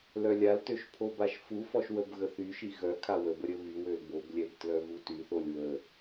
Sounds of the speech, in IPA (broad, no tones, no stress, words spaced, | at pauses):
lœlʲaltøʃ pʰobaʃfufɔʃ wəbɣəθyʃi ɣœkʰa wəbə ɾʲəβywøl boblʲɛb tlœɣutyθolʲ wə